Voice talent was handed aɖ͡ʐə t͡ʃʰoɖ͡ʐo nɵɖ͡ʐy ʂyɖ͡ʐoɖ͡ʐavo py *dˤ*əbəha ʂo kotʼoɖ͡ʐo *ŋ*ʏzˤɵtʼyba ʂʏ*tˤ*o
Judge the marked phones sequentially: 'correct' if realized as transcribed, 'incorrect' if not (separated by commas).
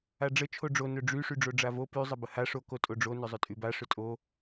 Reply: incorrect, incorrect, incorrect